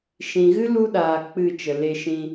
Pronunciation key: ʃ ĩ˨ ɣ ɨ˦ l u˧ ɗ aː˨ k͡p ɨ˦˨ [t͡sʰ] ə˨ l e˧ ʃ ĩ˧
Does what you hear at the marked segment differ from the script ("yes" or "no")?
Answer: yes